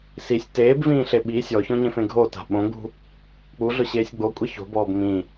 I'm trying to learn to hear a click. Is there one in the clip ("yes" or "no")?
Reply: no